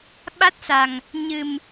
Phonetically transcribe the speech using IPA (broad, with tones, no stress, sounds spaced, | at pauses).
ɓ a˦˥ t̚ s a˨˩ ŋ | ɲ ɨ˨˩ m